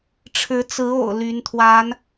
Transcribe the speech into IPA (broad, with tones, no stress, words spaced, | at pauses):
ʈ͡ʂʰɻ̩˧˥t͡sɹ̩˧˥o̰˨˩ʊ̯ ly˧˥nt̪ʰwa˧˥n